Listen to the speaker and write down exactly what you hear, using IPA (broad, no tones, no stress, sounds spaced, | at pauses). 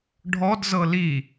ɖʱ ɔ d z ɤ l i